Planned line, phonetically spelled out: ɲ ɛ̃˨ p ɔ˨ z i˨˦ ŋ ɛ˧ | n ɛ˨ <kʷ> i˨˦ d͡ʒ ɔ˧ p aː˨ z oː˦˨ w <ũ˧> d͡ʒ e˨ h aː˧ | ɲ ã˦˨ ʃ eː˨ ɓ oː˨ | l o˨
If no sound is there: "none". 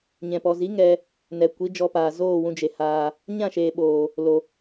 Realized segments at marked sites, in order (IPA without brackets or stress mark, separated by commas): kʷ, ũ˧